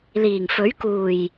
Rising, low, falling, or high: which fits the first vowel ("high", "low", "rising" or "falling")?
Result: low